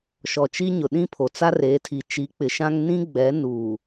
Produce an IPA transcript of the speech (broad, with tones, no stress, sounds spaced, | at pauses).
ʃ ɔ˨ t͡ʃ i˦ ɲ ʊ˨ ɗ ĩ˦ pʰ o˨ t͡s a˦ r eː˨˦ tʰ i˨ t͡ʃ i˨˦ k͡p ɪ˨ ʃ ã˦ ŋ n ĩ˦ ɡ͡b ɛ˨˦ n u˨